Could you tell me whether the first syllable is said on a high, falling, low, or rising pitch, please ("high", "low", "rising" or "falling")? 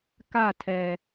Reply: falling